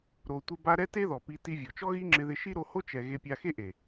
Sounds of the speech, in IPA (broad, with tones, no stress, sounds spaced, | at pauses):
ɾ o˧ tʷ ɪ˦ b a˦ ɾ ɛ˦ t e˦ ð ɔ˨ p i˧ t i˧ vʲ ɔ˨ t͡ʃ ɔ˦ ɣ i˦ ŋ͡ǁ ɪ˧ ð ɪ˧ ʃ i˦ ɾ o˧ h o˦ t͡ʃ ɛ˨ ɣ e˧ pʲ a˧ x e˦ ʔ e˨